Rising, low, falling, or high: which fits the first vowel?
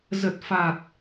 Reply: low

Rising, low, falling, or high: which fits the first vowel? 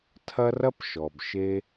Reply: high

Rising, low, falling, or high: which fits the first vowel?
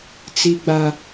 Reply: high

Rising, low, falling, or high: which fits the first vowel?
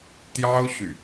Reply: high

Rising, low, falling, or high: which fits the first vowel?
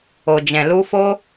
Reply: low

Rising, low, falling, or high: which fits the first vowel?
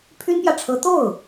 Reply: high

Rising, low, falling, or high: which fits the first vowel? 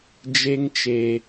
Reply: high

